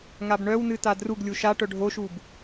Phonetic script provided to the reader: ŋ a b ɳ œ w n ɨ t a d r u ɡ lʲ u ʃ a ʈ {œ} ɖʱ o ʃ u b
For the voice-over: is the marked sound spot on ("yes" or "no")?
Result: yes